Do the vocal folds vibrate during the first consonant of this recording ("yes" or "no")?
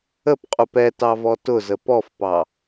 no